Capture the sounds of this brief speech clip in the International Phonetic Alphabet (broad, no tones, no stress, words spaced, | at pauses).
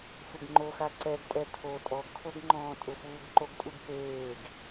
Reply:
fɪɡŋ͡ǃoxa ǀɛɡtʼɛ tʰo tʼɔɡkʰoɡŋ͡ǃɔ̃ː tʼʊfuːɡǃoɡtʼuɡ peːɡ